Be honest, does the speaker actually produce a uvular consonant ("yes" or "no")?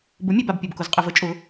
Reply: yes